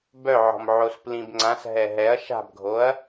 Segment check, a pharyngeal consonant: present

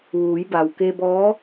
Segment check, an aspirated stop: absent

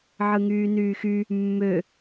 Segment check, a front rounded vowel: present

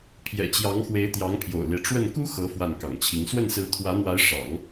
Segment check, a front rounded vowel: absent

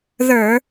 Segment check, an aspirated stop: absent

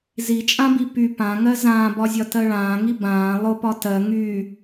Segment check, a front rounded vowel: present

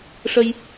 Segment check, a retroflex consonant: present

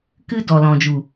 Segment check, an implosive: absent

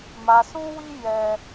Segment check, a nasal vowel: present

